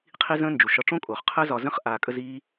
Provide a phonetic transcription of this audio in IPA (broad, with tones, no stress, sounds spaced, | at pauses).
qʰ i˦ z ə̃ː˦ n d͡ʒ u˨ ʃ ɒ˧ ʈ͡ʂ õ˦ kʼ oː˨ χ qʰ əː˦ z ɒ˧ z ə̃˦ χ ʔ aː˧ kʼ ə˦ z iː˦